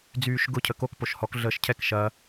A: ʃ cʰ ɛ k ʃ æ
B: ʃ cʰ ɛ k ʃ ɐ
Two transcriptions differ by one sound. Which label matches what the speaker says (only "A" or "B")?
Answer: B